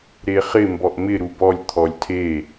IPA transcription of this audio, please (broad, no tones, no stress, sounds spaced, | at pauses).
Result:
ɾ e χ ɪ m b ɔ ʔ m ɪ ɾ u b ɔ lʲ t̪ʰ ɔ lʲ tʰ e